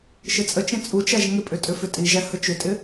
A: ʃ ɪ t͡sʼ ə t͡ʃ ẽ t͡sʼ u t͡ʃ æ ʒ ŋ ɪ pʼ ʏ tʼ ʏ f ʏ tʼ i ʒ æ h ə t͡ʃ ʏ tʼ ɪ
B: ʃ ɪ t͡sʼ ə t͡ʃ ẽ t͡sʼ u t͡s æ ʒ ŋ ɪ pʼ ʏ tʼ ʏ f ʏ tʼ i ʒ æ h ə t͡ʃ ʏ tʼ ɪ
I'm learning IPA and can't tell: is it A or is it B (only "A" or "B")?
A